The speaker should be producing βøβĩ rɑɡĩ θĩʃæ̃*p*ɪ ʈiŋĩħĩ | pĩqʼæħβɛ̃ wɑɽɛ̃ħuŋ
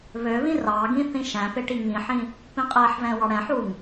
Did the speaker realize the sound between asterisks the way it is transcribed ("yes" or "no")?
yes